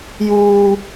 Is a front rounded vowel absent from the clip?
yes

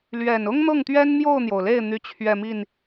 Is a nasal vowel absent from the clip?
yes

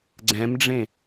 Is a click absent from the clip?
no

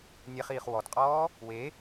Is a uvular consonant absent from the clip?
no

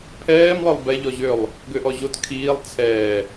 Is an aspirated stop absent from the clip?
no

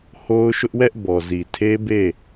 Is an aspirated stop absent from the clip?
no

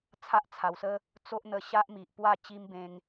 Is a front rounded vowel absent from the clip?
yes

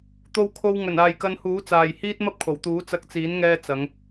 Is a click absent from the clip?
yes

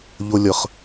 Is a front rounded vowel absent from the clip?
yes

